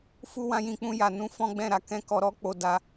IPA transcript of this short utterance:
f u˦ w ã˦ j ĩ˧ k͡p ũ˦ j a˧ n ũ˦ f ɔ̃˦ ɡ͡b ɛ̃˦˨ ɾ a˧ k ɛ̃˦ k ɔ˧ ɾ ɔ˦ k͡p o˧ d a˧

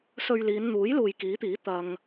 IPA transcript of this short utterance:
s ɵ˧ ɥ l iː˨˧ n n̪ uː˨˥ j l uː˨ j k iː˨˥ t̪ iː˨˥ t̪ ɐ˨ ŋ

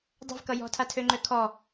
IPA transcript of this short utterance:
dˤ ɛ̤ v k ʌ j ɔ̤ tʰ a tʰ ø ŋ͡ǃ ø kʰ ɔ

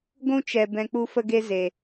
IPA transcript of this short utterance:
ɡʷ ũ˦ t͡ʃ ɛ˨ b ɛ̃˧ k͡p u˦ f ə˦ ɡ e˦ z e˨

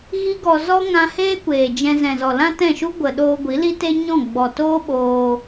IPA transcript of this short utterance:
ɣ i˦ ɡ ɔ˧ z ɔ˦ ŋ ã˧ h eː˦ kʷ eː˨ d͡ʒ ɛ̃˧ z ɛ̃˨ z ɔ˨ l ã˦ t ɛ̃˦˨ ʃ u˦ ɡʷ ə˨ ɗ oː˧ ɡʷ i˨˦ l i˦ t e˦ ɲ ɔ̃˦˨ ɡ͡b ɔ˨ t oː˦ ɓ oː˧

